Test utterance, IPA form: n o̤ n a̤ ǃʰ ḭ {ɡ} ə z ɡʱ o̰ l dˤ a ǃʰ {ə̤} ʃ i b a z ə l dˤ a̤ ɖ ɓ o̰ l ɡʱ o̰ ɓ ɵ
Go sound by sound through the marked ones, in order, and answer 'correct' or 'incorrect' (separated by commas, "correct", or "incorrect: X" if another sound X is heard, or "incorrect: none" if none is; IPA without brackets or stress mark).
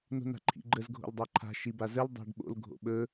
incorrect: ɡ͡ǃ, incorrect: a̤